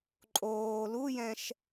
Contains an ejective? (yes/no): yes